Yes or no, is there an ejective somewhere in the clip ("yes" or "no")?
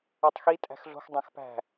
yes